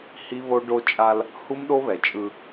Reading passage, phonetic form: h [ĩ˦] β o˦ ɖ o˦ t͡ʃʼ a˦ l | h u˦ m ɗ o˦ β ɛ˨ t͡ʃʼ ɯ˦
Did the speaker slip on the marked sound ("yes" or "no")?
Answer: yes